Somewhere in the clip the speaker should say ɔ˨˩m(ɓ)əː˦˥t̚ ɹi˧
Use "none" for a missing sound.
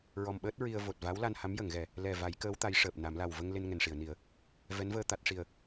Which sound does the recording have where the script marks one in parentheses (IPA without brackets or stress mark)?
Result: ɓ